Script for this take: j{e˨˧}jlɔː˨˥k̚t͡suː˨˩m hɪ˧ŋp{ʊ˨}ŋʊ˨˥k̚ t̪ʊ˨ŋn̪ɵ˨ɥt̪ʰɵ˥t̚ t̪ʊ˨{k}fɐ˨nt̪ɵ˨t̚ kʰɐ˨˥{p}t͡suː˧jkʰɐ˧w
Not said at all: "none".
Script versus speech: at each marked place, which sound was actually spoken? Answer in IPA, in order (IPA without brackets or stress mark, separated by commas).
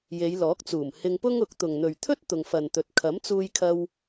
e˨˧, ʊ˥, ŋ, m